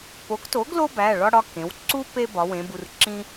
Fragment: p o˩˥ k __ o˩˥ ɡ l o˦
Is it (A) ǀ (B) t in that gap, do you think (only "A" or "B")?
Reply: B